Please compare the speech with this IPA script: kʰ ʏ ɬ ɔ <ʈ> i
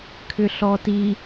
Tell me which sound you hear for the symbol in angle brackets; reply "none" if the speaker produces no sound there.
t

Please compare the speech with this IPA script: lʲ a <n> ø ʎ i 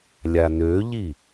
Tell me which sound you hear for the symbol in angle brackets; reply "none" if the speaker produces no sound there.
n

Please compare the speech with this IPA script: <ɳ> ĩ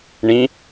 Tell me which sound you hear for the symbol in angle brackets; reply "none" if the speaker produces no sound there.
ɳ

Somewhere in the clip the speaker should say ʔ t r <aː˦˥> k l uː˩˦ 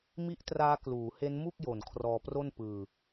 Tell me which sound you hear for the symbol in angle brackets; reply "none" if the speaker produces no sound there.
aː˦˥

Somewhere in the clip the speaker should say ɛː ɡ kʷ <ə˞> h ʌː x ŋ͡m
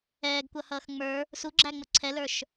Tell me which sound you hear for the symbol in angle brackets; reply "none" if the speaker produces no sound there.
ʌ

